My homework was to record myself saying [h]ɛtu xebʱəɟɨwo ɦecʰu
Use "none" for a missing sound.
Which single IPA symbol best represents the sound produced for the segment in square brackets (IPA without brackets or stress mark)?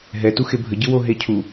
ɦ